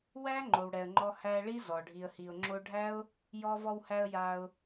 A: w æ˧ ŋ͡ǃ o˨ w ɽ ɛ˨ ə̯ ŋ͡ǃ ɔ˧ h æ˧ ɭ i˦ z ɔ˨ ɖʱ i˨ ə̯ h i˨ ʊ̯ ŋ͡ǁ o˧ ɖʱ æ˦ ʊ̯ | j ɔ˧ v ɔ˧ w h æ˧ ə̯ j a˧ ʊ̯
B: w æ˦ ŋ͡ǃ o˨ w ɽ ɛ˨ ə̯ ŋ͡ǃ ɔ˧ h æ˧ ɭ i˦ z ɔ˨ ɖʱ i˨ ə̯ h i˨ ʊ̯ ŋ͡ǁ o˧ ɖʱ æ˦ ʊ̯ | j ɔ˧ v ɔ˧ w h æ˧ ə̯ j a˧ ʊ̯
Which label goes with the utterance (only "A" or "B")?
B